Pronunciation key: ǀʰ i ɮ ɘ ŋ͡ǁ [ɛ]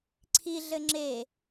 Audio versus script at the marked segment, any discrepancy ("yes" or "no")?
yes